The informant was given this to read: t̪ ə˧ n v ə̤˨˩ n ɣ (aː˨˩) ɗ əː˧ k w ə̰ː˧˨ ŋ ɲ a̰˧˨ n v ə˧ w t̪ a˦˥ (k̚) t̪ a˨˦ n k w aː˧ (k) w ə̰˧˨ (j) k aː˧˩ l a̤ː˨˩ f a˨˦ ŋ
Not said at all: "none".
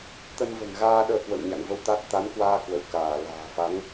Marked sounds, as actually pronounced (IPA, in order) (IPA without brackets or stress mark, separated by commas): aː˧, t̚, k, w